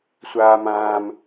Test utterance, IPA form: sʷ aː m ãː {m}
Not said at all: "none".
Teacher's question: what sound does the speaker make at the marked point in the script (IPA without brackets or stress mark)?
m